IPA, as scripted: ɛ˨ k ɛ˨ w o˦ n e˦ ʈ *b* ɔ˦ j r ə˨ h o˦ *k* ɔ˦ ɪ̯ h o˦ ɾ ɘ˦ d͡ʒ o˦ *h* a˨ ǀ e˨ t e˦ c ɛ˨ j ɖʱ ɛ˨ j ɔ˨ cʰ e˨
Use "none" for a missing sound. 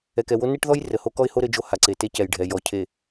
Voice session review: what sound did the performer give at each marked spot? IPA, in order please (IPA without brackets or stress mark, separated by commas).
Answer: ð, k, h